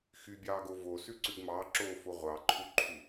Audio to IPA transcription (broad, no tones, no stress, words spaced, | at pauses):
xybʲɑːɡo vosʉǀʉɡ mɑǁoːfo ʁʷɑǃʰuǃʰu